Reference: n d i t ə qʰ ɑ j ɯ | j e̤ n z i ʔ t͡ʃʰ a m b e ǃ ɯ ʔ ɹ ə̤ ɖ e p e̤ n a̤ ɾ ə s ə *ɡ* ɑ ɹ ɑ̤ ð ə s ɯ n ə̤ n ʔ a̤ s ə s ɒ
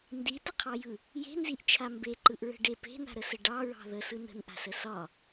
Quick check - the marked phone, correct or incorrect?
incorrect: ɖ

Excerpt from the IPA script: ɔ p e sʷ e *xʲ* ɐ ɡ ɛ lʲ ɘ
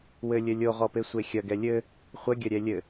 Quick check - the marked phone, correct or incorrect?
correct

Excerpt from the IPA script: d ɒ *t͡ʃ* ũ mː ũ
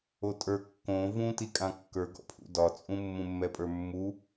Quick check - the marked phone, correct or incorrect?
incorrect: t͡sʼ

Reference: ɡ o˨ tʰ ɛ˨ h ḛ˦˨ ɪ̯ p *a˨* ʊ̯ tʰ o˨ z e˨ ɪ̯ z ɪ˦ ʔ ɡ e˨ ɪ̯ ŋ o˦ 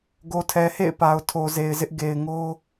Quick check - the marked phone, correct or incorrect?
correct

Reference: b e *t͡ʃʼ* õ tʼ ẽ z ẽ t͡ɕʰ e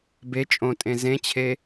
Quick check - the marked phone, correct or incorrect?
correct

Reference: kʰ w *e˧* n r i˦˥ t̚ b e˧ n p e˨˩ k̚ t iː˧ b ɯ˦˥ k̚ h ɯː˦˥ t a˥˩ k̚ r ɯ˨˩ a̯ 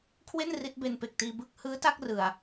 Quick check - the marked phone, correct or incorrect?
incorrect: e˥˩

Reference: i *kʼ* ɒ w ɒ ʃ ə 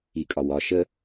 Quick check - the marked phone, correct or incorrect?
correct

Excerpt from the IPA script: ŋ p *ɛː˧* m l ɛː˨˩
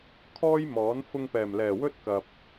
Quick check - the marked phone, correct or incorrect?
incorrect: ɛː˨˩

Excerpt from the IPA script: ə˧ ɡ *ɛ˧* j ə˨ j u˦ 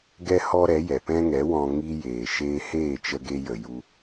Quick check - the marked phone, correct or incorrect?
incorrect: e˧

